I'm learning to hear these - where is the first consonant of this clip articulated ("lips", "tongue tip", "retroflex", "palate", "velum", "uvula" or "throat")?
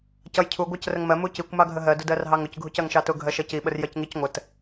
palate